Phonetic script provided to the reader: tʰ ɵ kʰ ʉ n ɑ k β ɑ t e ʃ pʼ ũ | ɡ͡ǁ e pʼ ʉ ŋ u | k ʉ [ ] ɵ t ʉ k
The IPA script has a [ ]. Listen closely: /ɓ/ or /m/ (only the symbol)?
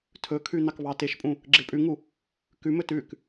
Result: m